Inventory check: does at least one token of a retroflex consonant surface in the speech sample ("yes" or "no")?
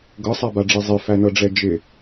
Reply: yes